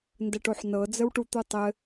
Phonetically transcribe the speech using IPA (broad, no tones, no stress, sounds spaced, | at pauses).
n d ə ʈ o ħ n ɤ d͡z ə w ʈ u t̪ u tˤ ɘ